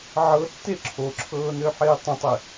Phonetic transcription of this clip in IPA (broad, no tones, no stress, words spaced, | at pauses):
ʕɤtːe ǁʰoǁʰɤːnøħɪː tˤə̃tˤɪ